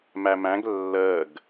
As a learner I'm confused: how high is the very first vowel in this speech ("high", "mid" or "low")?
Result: low